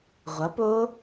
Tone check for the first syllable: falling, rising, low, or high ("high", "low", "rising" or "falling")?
rising